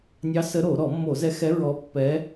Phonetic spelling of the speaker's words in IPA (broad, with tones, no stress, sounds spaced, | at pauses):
nʲ ɑ˧˥ s ə˧˥ ɾ o˧˩˧ ɾ ɔ˧˩˧ mː o˧˩˧ z ɛ˧˥ x ɛ˧˥ ɹ ɔ˧˥ pː ɛ˧˥